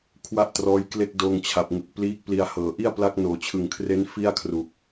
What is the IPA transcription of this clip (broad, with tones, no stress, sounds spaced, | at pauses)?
kʰ w a˥˩ ʔ t r ɔː˦˥ j k l e˥˩ k̚ d oː˧ ŋ t͡ɕʰ a˨˩ p̚ ŋ ɯ˨˩ k̚ p l iː˦˥ k̚ p l i˧ a̯ h ɤː˨˩ ʔ i˥˩ a̯ p l a˦˥ k̚ n oː˨˩ t͡ɕʰ ɯ˨˩ ŋ kʰ r e˦˥ n f i˥˩ a̯ kʰ r u˨˩ k̚